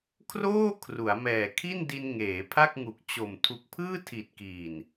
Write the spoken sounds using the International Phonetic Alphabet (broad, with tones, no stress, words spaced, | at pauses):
kʰroː˥˩kʰru˩˦a̯mɛː˨˩ kʰi˥˩ndi˧nŋeː˩˦ pʰa˥˩k̚ŋu˨˩k̚t͡ɕo˨˩m tʰu˨˩k̚pʰɯː˥˩tʰi˨˩t̚ kiː˨˩n